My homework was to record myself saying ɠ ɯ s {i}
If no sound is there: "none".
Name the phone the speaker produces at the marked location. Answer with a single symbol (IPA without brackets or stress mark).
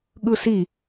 i